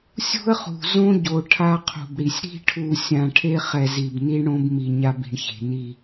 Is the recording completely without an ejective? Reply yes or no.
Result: yes